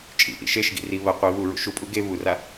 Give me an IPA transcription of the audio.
t͡ʃʼ ḭ ʔ ḭ ʃ e ʃ ɡ ḭ r i β ɐ qʷ i β u ɹ ṵ ʃ u pʼ u ɡ e β u r a

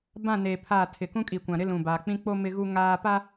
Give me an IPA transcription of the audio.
b ã˦˨ n eː˨ pʰ aː˦˨ tʰ ɪ˨ k ũ˦ kʼ i˨ kʷ ã˨ ɾ ɪ˦ l ũ˨ b aː˨ k͡p ĩ˦ k͡p o˦ m ɪ˦ ɣ u˦ ŋ aː˦ p a˦

